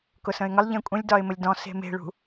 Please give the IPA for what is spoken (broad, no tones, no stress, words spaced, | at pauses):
kʊsə̃ɪ̯ŋəlˠ ʎẽkʷʼə̃lʲ dɒɪ̯məlʲdɔ̃ se̤me̤ɭṳ